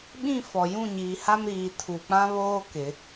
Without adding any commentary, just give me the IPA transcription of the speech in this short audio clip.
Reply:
ɓĩ˦˨ fɔ˨ jũ˦˨ɲiː˨ha˦mɾiː˨ tʰu˨k͡pã˦βoː˦ kɪ˨˦

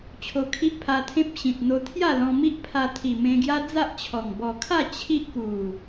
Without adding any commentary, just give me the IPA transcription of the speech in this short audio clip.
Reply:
t͡ɕʰo˧kʰi˦ʔpʰa˧t̪ʰẽ˦p̚ ɕĩ˨t̚ n̪o˧t̪ʰja˥˧ lɔ̃˧ mi˦ʔpʰa˧t̪ʰi˨˩ mẽ˧ɡja˦d͡za˦ʔt͡ɕʰɔ˨˩ŋ bɔ˨˩kʰa˥˧ t͡ɕʰi˦ʔku˨˩

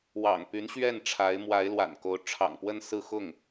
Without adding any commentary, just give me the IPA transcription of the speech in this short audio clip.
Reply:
wɑ̰˨˩ŋpy˧˥nɕɥɛ˥˩nʈ͡ʂʰa˧˥ɪ̯ mwa˧˥ɪ̯lwa̰˨˩nko˧˥ʊ̯ ʈ͡ʂʰɑ̰˨˩ŋpwə˥˧n sɹ̩˥˧xʊ˥˩ŋ

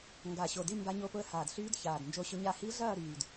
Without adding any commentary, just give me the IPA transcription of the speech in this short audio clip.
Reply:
ŋɡa˨˩ɕo˨˩di˥˧ mba˦˥ɲo˦˥pʊ˦˥ə̯ haː˨˩dɬyː˦˥d çaː˨˩dnd͡ʒo˦˥ɕʊ˦˥ ɲa˥˧ hi˦˥ɮɐː˥˧ ɾyː˨˩d

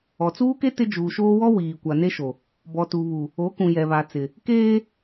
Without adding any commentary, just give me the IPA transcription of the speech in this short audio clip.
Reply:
ɔ˨t͡suː˦ke˦ tɪ˦ d͡ʒuː˨ʃoː˦ wɔ˦ wiː˨kʷa˨ne˦ʃo˨ | bɔ˨tu˨βu˨ | o˨˦kũ˨ jɛ˨βa˨t͡sɪ˨ | keː˦

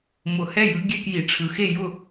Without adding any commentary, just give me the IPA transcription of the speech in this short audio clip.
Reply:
mʊ˨˩˦hɛ˥˩ jɯ˨˥ɡʲɛ˧˥˧kji˨˩˦ ʈ͡ʂʰɯ˩˧˩xe˥˩jʊ˥˩

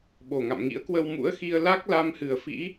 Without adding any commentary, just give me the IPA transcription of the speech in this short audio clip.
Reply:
ɓo˨˩ŋa̰˧˨mŋḭ˧˥ə̯ kwə˧wmṵ˧˥ə̯xi˧ə̯ la˦˥k̚la˧mhɨ˨˩ə̯ fḭ˧˥

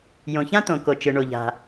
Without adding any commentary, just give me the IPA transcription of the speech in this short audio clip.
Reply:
jõ˩çã˥t̪õ˩ ko˩ t͡ʃɨ˩ɳo˩ʎa̤˩

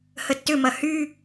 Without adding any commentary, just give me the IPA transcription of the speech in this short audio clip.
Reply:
hətːʏmɐ hy

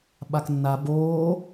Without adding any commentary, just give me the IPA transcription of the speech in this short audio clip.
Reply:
ɓaknːa boː

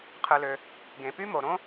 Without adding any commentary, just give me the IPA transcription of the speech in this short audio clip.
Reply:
qʰɯ˨lø˨ | ɡẽ˨py˥mo˨ ɾõ˥

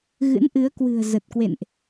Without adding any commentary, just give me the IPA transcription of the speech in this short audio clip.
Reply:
ɣɨ̰˧˥nʔɨ˨˦ə̯kwɨ̤˨˩ə̯ zə˨˩t̚kwḛ˧˨nʔ

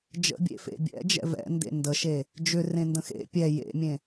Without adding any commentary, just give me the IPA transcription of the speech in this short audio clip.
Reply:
d͡ʒə̰bʲḛfḛ bʲɛ̰d͡ʒɛ̰ vɛ̰ndḛ ndəʃe | d͡ʒʏrẽndə̃ xḛ pʲɛ jḛmʲẽ

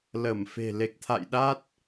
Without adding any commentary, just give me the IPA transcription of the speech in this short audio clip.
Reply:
lə˧˩mfe̤˨˩ le˨˩k̚t̪ʰa̰˧˨jɗa˦˥t̚

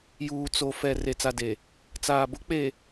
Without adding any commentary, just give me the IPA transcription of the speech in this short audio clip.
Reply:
juː˨t͡so˨fɛ˨ re˨t͡sa˨de˨ | t͡saː˨bʊ˦k͡pe˨

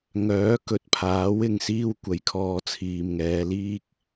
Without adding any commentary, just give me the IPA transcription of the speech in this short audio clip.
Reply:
ŋœː˨˥kɵ˨t̚pʰaː˨˥w ɪ˨ŋsiː˧w kʷɐ˨˥jkʰɔː˨˧t͡sʰiː˨m ŋɛː˨˧liː˥k̚

